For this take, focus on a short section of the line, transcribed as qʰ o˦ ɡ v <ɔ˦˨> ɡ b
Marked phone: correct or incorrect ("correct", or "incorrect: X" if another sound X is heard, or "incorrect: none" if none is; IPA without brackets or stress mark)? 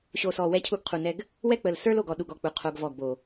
correct